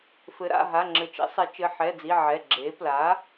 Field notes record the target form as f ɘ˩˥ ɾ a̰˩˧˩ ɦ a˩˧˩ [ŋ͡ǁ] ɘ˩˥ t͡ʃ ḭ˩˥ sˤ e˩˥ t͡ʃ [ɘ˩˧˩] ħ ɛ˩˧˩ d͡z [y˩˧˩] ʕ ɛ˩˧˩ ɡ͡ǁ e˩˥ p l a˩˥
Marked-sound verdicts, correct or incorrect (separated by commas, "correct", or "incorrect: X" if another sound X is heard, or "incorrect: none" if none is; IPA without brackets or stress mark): correct, correct, incorrect: i˩˧˩